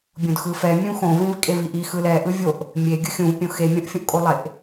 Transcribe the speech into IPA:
bʲ õ d x ɯ f ɛ mʲ ũ x õ v ĩ v kʼ e v i ʔ i x ɯ l ɛ ʔ ɯ vʲ o ʔ | mʲ e ɡʲ ɯ xʲ ũ v pʲ õ x e mʲ õ ʔ fʲ ũ ʔ kʼ o lˠ e ʔ

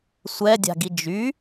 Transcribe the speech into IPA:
sʷ ɛ dʲ a̤ ɡ i d͡ʒ y

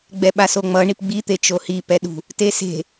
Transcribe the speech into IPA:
ɡ͡b ɛ ɓ a s o ŋ͡m ʌ ɳ i p ɡ͡b i t̪ e t͡ʃ o h i p ɛ ɗ ṳ | t e s e̤

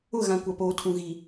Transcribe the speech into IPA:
ʊ˦˨ ɣ ã˨ kʷ a˨ p oː˨˦ tʰ ũ˨ ɣ i˨

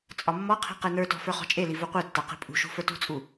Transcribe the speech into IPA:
t͡sʼ ɒ mː ɔ qʰ i̤ q e n ə˞ t ɔ̤ f ə˞ χ ɔ̤ t͡ʃʼ e l i v u qʷ ɛ tː a q i̤ pʼ ṳ ʃ ṳ f ə˞ t ṳ t͡sʼ u

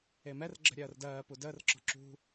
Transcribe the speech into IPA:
e m ɛ r ɡ͡ǁ ə̤ ɾʲ ɜː r d ɜː p u d əː r ǁ ɔ̤ ǁ ṳ

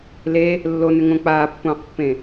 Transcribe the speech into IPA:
l e | lː o n ʏ ŋ õ k͡p aː pː õː q pː ẽ

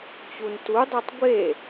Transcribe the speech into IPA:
t͡ɕ u n t u dˤ i tˤ ɡʷ e

